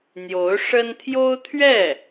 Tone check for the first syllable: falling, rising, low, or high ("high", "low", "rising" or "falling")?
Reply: rising